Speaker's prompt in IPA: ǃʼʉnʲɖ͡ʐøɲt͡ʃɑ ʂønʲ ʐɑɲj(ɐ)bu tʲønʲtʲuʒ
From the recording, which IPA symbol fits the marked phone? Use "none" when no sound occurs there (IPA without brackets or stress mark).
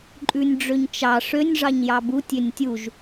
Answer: ɑ